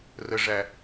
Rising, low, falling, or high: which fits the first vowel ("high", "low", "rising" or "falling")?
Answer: low